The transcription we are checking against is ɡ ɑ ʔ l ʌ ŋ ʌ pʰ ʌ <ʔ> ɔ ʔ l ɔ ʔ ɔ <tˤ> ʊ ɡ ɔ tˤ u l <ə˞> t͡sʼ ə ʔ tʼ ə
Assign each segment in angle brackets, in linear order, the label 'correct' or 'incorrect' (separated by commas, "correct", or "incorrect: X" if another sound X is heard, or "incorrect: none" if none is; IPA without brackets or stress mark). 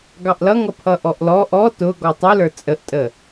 correct, incorrect: t, correct